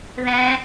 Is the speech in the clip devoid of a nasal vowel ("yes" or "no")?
no